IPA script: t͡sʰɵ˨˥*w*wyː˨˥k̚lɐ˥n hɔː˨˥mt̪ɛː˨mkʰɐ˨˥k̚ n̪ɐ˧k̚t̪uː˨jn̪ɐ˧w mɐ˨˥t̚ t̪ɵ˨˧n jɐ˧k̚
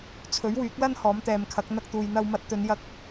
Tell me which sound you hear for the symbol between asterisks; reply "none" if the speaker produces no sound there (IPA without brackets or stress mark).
ɥ